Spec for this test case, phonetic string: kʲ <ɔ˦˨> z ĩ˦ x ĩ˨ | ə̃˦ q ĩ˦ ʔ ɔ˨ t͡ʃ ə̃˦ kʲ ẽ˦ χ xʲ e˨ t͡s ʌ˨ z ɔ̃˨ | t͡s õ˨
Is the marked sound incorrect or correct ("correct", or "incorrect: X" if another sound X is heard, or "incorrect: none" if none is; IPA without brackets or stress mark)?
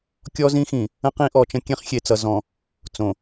incorrect: ɔ˦